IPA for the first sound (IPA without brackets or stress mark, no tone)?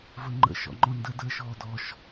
v